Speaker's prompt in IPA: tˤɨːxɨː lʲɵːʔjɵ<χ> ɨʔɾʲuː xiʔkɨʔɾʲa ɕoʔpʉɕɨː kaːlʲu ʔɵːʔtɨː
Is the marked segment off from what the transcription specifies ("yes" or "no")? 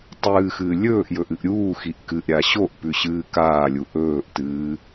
yes